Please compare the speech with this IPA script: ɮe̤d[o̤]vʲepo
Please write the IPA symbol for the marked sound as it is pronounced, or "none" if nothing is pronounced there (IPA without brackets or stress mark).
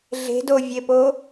o